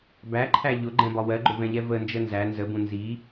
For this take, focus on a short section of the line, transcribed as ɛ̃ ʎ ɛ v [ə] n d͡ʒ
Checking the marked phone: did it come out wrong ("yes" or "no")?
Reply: no